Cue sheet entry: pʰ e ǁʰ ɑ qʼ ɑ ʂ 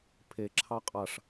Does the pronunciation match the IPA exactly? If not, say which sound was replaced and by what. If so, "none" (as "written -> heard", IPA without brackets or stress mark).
none